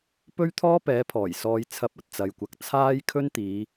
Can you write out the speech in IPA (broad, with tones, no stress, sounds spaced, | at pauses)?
p ɵ˥ ɥ t̪ʰ ɔː˥ p ɛː˨˥ pʰ ɔː˨˩ j s ɔː˧ j t͡sʰ ɐ˧ p̚ ɐ˨ t̚ t͡s ɐ˨ j kʷ ɐ˨ k̚ t͡sʰ aː˥ j kʰ ɵ˥ n t̪ iː˨˧